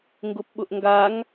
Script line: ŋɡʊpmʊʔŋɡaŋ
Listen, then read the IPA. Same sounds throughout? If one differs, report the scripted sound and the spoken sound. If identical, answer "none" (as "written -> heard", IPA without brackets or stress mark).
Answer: m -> ɓ